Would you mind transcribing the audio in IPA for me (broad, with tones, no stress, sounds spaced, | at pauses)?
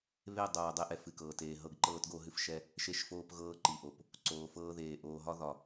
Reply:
β e˦˨ dˤ oː˨ dˤ e˦ ʔ ɛ˨ f ɨ˨ k ɤː˨ t eː˨ ɦ ɤ˦˨ ɡ ǃ ɤː˦ t ɡ o˦ ɦ ɨ˦ f ʃ ɛ˦ | ʃ e˦ ʃ f oː˦ p ɣ ɤː˦ ǃ i˨ ʔ o˨ p | ǀ oː˨ f ɤː˦ ð eː˨ ʔ oː˨ ɦ ɒ˦ ð ɒ˨